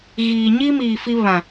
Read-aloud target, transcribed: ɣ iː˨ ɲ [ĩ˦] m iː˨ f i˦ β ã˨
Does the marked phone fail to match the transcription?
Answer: yes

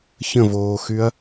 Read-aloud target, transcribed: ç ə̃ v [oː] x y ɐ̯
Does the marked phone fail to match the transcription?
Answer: no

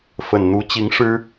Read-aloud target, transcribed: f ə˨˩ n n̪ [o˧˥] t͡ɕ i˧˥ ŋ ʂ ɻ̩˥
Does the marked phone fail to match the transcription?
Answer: yes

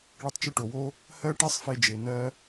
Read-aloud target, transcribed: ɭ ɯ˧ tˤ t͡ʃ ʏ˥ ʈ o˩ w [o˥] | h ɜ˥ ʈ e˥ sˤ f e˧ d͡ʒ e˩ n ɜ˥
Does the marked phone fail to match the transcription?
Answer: no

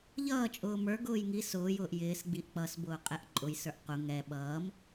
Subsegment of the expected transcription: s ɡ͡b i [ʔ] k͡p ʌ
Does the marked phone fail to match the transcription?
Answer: no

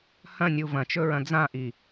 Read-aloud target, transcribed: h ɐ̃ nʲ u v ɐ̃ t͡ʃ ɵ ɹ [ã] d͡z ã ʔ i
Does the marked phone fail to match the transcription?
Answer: yes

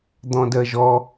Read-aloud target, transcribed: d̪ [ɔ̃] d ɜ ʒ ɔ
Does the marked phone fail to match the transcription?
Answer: no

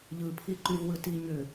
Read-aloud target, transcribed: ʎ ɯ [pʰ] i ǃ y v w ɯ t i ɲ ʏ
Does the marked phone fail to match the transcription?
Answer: no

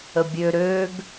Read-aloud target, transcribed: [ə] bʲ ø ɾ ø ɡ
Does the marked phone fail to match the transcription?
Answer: no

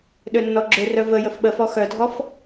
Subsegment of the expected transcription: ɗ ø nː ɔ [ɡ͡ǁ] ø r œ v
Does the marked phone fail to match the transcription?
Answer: no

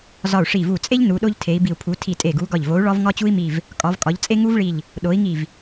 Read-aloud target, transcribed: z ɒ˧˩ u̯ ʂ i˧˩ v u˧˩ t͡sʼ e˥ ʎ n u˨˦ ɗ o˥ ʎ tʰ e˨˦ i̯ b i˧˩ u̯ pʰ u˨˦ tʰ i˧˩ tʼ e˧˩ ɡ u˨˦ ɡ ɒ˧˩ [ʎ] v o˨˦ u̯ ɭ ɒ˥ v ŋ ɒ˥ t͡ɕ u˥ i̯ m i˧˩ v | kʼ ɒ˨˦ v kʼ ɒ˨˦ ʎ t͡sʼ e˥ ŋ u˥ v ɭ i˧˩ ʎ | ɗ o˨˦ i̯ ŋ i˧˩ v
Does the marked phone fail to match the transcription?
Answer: no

